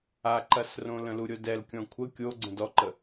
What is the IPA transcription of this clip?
a ǃ ɐ s r õ l ə̃ l u ɾʲ o d ɛ l kʲ ɔ̃ kʷʰ ə kʲ o ɡ͡ǀ ə̃ d ɔ ǃ ə

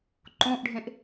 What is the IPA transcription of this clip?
ǃ õ ʔ ɖʱ ẽ ʔ

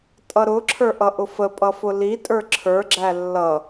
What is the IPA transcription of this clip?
tʼ ʌ ɾ ʊ ǁʰ ə˞ ʔ ʌ ʔ ʊ f ə pʼ ʌ f ʊ l i tʼ ə˞ ǁʰ ə˞ ɡ͡ǁ æ lː ʌ

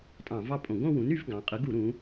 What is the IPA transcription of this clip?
tʼ ɑ̃˧˩˧ v ɑ˥˧ pʼ õ˧˩˧ ɡ õ˥˧ w ũ˩˥ n y˩˥ v ɡ ɑ̃˩˧ qʼ ɯ˩˥ ɡ u˧˩˧ ɾ ũ˩˧

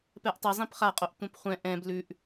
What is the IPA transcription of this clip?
p ɛ ʔ tˤ ɘ zˤ ĩ p χ a qʼ o ʔ tʷ ɛ̃ p χʷ ɛ̃ ʔ ɛ̃ b l ʉ ʔ

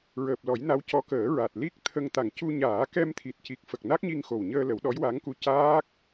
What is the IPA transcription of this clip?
ɹ əː˨˩ p̚ l ɔ˨˩˦ j n a˧˥ w c ɔ˧˥ k əː˨˩˦ ɹ a˨˩ t̚ l i˦˥ k̚ t̪ʰ ə˧ ŋ t̪ a˨˩ ŋ c u˧ ɲ aː˨˩˦ k ɛ˧ m t̪ʰ i˨˩ t̚ c i˨˩ k̚ f ə˨˩ k̚ n a˦˥ k̚ ɲ i˧ ŋ x o˨˩ w ɲ əː˧ l ə˨˩˦ w ɗ ɔ˧˥ j w a˧˥ ŋ k u˧ c aː˦˥ k̚

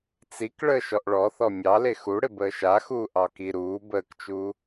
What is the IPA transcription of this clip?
t͡s i k ɭ əː ʃ ɔ ʔ ɭ ɔ θ ɔ mʲ ɑ l e x u ɽ ɪ b əː ʃ a x uː ʔ ɑ k i ɾ uː b əː k t͡ʃ uː

